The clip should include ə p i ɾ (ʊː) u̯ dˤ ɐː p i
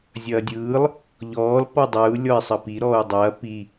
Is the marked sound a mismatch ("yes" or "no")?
yes